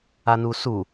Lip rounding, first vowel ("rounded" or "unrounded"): unrounded